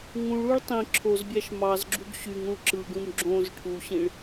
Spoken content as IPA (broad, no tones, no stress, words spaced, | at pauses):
ŋũɭuɭ tˤĩ ǁʰozbʲæʃ mɑzɡ͡ǁuɡ ɕyŋũɭ ǁɯɡũm ɡ͡ǁõz ʈʰuɕĩɭ